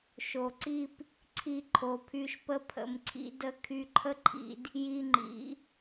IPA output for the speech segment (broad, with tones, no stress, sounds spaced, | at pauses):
ʃ o˨ ǀ i˦ p | ǀʰ i˧ ǃʰ o˨ pʰ y˧ ʃ p ə˧ pʰ ə̰˨ m ǀʰ ḭ˧ d ə˧ kʰ y˧ ǃʰ ə˦ ǃʰ ḭ˧ d | j i˧ ŋ͡ǃ ḭ˨˦